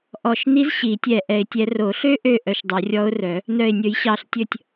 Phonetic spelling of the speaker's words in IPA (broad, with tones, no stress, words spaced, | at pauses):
ʔɔ˧˩ʃni˧˥z ɕi˨˩˦tʲɛ˧˩ ʔɛ˨˩˦ɪ̯tʲɛ˨˩˦ro˨˩˦ ɬø˧˥ʔø˧˩ ʔœ˧˩ʃdˤœ˨˩˦rʲɔ˧˥ʊ̯rœ˨˩˦ | nœ˧˩ɪ̯nʲɵ˨˩˦jɕɑ˧˩ɬtʲɵ˧˩tʲ